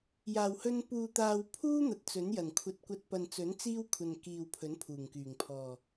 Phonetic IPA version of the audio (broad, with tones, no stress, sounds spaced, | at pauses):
j aː˨˩ w h ɵ˧ n p uː˨ t̪ aː˨ w pʰ uː˥ n̪ ɐ˧ t̚ t͡s ɵ˨˥ n j ɐ˨˩ n kʷʰ ɐ˧ t̚ kʷ ɐ˧ t̚ p ɐ˨ n t͡s ɵ˨˥ n t͡s iː˥ w kʷʰ ɐ˨ n k iː˨ w pʰ ɵ˨˥ n pʰ uː˨˩ ŋ k yː˨˩ ŋ pʰ ɔː˨˩